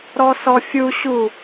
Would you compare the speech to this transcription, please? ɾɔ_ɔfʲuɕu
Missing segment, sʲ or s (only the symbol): s